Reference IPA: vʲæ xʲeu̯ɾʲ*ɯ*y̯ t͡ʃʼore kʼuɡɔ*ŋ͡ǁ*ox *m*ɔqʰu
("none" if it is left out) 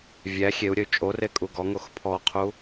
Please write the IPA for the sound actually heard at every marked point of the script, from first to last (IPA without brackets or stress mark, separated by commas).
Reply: ə, ŋ, pʰ